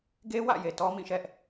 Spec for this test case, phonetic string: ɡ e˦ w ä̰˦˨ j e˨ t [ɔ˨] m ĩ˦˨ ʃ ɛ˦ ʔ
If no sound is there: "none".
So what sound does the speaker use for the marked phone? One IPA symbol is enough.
ɔ˦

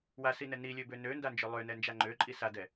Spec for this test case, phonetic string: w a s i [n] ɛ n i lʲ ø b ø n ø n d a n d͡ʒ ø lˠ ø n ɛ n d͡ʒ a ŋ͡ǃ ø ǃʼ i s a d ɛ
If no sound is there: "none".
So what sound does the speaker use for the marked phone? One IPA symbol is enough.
n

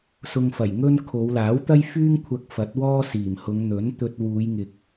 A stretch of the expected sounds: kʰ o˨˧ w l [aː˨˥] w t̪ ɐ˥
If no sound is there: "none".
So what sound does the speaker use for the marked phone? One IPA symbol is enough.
aː˨˥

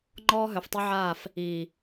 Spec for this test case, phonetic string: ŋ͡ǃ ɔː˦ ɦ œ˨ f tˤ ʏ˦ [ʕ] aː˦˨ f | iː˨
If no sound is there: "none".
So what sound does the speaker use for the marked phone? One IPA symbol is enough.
ʕ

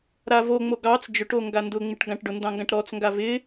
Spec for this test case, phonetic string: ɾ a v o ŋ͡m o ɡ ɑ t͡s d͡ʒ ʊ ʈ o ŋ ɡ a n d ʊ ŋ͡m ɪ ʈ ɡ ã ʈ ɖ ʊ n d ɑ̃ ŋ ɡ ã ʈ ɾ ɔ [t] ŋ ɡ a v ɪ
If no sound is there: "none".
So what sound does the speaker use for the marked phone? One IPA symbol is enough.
t͡s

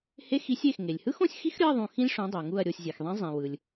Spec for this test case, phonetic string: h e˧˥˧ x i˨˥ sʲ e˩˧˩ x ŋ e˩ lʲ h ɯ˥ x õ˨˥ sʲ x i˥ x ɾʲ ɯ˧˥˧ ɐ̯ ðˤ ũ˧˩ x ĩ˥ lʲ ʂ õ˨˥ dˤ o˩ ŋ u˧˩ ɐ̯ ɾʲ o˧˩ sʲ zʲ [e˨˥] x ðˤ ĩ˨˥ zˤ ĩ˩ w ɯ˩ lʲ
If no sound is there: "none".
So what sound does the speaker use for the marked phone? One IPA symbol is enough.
e˩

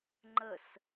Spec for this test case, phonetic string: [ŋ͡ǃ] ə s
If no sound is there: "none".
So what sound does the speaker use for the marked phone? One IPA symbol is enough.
ŋ͡ǃ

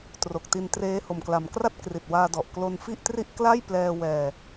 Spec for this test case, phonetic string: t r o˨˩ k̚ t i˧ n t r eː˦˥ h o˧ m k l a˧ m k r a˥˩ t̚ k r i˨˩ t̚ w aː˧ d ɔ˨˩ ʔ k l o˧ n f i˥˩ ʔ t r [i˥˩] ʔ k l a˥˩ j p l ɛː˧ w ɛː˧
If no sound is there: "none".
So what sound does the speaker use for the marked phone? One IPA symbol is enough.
i˥˩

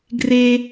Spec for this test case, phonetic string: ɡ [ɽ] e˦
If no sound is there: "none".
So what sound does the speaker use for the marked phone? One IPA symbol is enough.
r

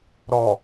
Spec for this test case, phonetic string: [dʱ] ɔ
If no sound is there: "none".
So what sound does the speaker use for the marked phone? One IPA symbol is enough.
ɾ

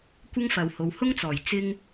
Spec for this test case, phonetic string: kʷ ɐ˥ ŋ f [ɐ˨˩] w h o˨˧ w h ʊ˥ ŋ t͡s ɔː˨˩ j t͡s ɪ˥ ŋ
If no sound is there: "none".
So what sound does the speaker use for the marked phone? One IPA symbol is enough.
ɐ˨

